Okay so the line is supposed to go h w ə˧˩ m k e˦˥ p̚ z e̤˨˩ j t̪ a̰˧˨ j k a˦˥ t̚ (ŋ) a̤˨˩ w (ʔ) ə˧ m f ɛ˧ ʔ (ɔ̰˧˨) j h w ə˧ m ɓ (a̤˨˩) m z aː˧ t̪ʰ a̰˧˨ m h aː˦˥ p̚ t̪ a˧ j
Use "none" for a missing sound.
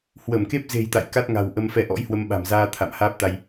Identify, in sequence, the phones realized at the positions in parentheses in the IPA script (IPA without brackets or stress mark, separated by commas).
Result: ŋ, ʔ, ɔ̰˧˥, a̤˨˩